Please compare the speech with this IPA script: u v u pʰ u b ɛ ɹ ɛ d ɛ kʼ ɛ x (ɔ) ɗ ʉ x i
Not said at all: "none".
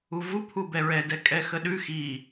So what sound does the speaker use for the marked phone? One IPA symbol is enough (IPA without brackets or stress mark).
ə